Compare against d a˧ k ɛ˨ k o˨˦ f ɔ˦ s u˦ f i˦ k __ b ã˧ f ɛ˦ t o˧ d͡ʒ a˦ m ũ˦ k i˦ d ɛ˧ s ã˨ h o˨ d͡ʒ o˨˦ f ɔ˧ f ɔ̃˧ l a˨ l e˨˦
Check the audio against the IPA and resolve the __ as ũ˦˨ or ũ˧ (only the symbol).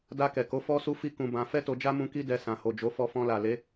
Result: ũ˧